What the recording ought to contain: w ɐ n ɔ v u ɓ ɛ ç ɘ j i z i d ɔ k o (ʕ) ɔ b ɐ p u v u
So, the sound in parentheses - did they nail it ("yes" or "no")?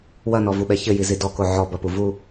yes